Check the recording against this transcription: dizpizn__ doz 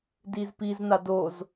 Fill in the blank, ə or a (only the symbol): a